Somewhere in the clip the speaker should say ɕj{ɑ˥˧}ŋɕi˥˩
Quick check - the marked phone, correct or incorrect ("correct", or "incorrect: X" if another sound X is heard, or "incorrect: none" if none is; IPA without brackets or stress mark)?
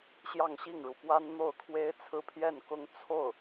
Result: correct